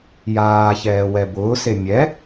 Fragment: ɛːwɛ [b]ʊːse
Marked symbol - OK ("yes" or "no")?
yes